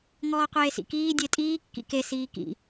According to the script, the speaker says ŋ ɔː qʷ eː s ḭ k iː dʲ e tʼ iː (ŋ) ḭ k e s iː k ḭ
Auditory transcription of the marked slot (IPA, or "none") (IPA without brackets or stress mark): kː